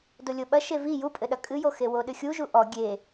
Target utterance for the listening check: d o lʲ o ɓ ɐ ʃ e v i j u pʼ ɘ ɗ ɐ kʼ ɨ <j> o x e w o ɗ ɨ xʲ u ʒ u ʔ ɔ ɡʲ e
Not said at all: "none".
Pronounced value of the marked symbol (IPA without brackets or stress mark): j